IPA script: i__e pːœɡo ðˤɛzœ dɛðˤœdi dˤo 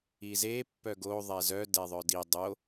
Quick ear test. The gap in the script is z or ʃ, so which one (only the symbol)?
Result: z